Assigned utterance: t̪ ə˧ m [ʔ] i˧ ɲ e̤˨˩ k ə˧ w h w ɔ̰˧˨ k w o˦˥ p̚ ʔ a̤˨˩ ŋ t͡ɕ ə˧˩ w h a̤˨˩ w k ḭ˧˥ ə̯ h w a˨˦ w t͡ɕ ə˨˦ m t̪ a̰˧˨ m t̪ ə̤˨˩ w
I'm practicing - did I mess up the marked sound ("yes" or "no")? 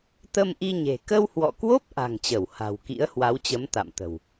no